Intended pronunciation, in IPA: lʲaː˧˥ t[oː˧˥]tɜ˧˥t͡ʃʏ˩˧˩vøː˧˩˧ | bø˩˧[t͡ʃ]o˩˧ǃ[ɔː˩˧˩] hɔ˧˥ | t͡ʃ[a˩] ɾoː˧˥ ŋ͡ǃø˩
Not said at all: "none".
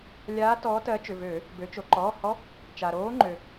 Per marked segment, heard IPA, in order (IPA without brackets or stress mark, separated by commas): ɔː˧˥, t͡ʃ, ɔː˩˧˩, a˩